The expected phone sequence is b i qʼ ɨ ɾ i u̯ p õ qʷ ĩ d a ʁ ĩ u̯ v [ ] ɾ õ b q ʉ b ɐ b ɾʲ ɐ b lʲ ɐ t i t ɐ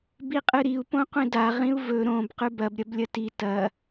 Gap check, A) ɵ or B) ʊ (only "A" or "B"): A